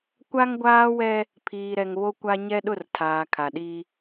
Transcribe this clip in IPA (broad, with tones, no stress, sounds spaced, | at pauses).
kʷ a˦ ŋ ɡʷ aː˦ w ɛ˦ | pʰ iː˨ ɾ ɛ˨ ŋ β o˦ kʷ a˦ ɲ ɛ˦ ɗ ʊ˦˨ r tʰ aː˨ kʰ a˨ ɗ i˦